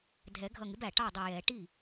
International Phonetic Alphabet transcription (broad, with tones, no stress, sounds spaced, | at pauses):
dʱ ɛ˨˩˦ ɡʱ ʌ˧˩ ŋ ɪ˩˥ b æ˩ ʈ ɑ˥˩ dˤ ə˧˩ j ɛ˨˩˦ ʈ i˥˩